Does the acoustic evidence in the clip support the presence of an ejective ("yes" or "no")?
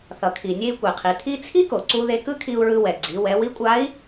yes